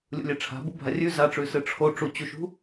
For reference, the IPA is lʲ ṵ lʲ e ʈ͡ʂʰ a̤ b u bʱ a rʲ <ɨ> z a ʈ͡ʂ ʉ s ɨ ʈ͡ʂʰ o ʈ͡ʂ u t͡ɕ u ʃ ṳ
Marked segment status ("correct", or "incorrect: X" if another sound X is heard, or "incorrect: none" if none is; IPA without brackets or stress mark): incorrect: ʉ